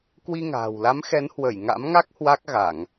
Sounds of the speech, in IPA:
k w i˧ ŋ a̤ː˨˩ w l a˨˦ m x ɛ˨˦ n h w ə˧˩ j ŋ a̰˧˥ m ŋ a˦˥ k̚ h w a˦˥ k̚ ɣ a˧˩˨ ŋ

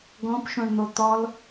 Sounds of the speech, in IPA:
ɡ ɔ̃ p ʃ õ ɳ n̪ o t̪ ɔ l

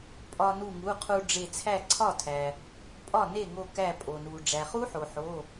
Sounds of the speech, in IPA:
pʼ ɒ˧ n u˧˩ ŋ u˩˧˩ qʰ u˧ ɖ͡ʐ e˧˩ t͡sʰ æ˥˩ ǀʰ ɒ˥˩ tʰ æ˩ | pʼ ɒ˥˩ n e˥˩ ŋ o˧˩ k æ˧˩ pʼ o˩ n u˩ ɖ͡ʐ æ˩ χ u˦˥ ħ o˩ ħ o˩˧˩

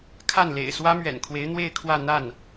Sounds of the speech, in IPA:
kʰ a˥˩ n l ḛ˨˩ ɪ̯ s w ä˥ m ɥ ɛ̰˨˩ n kʰ w e˧˥ ɪ̯ n̪ w e˥˧ ɪ̯ kʰ w ä˥˧ n̪ a˥˩ n

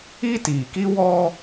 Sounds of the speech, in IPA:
i˦ t iː˨ k i˦ w ɔ˦

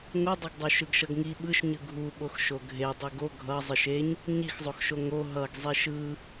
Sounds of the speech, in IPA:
ŋ o dˤ ʌ ɡ dˤ o ʃ ɯ ɡ ʃ ʌ ɡ ŋ i ɓ ɯ ʃ ɲ ɯ ɡʱ u ɓ o x ʃ o ɡʱ e dˤ ɯ ɡ o ɡʱ ʌ zˤ ɯ ʃ e ɲ | ɲ i x zˤ o x ʃ o ŋ o ɦ ʌ ɡ zˤ i ʃ ɯ

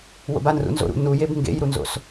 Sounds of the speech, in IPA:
w o̰ b a n r ṵ n z o̰ ɾ ṵ n u j e b ŋ ɡ ḛ j ɾ u n z o̰ s

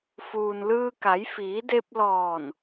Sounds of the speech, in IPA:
f uː˩ n l ɯː˧ k a˩˧ j f iː˩˧ d e˧ p̚ l ɔː˧˩ n

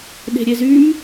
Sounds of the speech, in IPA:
ɗ e̤ ɾʲ e z y m

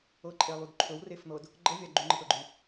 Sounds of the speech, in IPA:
ɤ ǃʼ e lˠ y d ǃʰ ɵ w r e f n̪ ɤ d | ɡ͡ǃ ɤ vʲ a ɡ͡ǃ y ŋ͡ǃ ə t ɤ ɡ͡ǃ y

